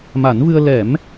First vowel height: low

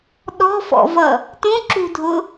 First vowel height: mid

